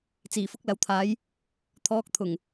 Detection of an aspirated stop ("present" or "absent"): present